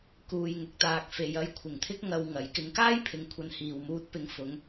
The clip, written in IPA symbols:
k uː˨ j ŋ ʊ˨ k̚ t̪ aː˨ k̚ f e˨ j ɐ˧ j kʷʰ ɪ˨˩ ŋ t̪ʰ ɪ˥ k̚ ŋ ɐ˨ w ŋ ɐ˨˥ j k ɪ˨˧ ŋ k aː˥ j pʰ ɪ˨ ŋ kʷʰ ɐ˨˧ n h iː˨ w m uː˧ t̚ p ɪ˧ ŋ f ʊ˨˧ ŋ

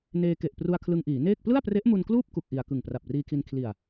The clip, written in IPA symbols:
n eː˧ k e˨˩ ʔ p r u˧ a̯ kʰ l ɯ˧ ŋ ʔ iː˩˦ n eː˥˩ k̚ p l ɯ˥˩ a̯ p r e˦˥ ʔ m u˧ n k l uː˥˩ p̚ k u˥˩ k̚ ʔ i˧ a̯ k ɯ˨˩ ŋ p r a˨˩ p̚ r iː˧ kʰ i˧ n kʰ l i˨˩ a̯

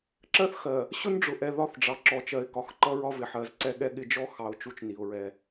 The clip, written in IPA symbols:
ǁ ɜ˦ θ x ɜ˨ | ɕ ʊ˦ n ɖ͡ʐ ʊ˨ ʔ ɛ˨ ð ɒ˦ θ ɖ͡ʐ ɑ˨ ǁ ɔ˨ t͡ʃ ɜ˨ ɪ̯ k ɒ˨˦ x ǃ ʌ˦ ɹ ɒ˦ v ɪ˨ ħ ɜ˨˦ z ǀ ɛ˦ ɠ ɛ˦ ɠ ɪ˦ d͡ʒ ɔ˦ x ɑ˨ ʊ̯ t͡ʃ u˨ t͡ʃ n i˨ ʊ̯ ɹ ɛ˦

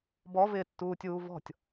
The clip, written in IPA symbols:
b ɔ v ɪː tː uː tʲ uː v ɔ̤ tʲ

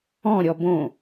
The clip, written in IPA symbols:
ɔ̃ ɾʲ ɔ b õ

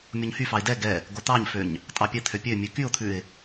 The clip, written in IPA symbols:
mʲ o ɲ h y f ɑ ɪ̯ d ɛ ɡ ɛ | ɡ o t̪ ɑ ɲ f ø ɲ | tʼ ɑ pʲ ɛ t̪ʰ ø pʲ ø mʲ ʉ k y ʊ̯ t̪ʰ ʉ ɪ̯

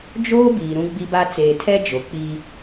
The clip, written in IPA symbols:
d͡ʒ oː˦ b iː˨ ɾ ũ˦ ɡ͡b i˦ b a˦ t͡s eː˨ tʰ ɛ˦ d͡ʒ o˨ k͡p iː˦

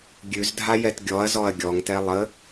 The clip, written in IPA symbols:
ɡʲ ʉ z dʱ a j ɛ t ɡʲ ɔ ɐ̯ z ɔ ɐ̯ ɡʲ ɔ ŋ t ɛ lˠ ə

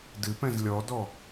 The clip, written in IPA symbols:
d ɨ p ɛ̃ z lʲ ɔ d ɔ

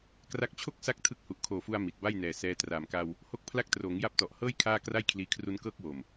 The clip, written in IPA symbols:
k r a˦˥ k̚ t͡ɕʰ o˥˩ k̚ s a˥˩ k̚ tʰ ɯ˦˥ k̚ h u˨˩ ʔ kʰ oː˨˩ f u˧ a̯ m i˨˩ t̚ b a˥˩ j n ɛː˨˩ s ɛː˧ t r aː˨˩ m k a˧ w | h o˦˥ k̚ pʰ l a˦˥ k̚ t r oː˩˦ ŋ j a˦˥ p̚ t ɔ˨˩ ʔ h ɤː˥˩ j kʰ aː˥˩ k r a˥˩ j kʰ l iː˧ kʰ r u˦˥ n k ɤː˦˥ k̚ w o˨˩ m

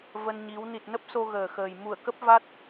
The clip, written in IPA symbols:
v ə˧ n ɲ i˨˦ w n i˨˩ t̚ n ə˦˥ p̚ s o˧ ɣ əː˨˩ x əː˨˩ j m u˧˩ ə̯ k ə˦˥ p̚ v a˦˥ t̚

